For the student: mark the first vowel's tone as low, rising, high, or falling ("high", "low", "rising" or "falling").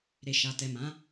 low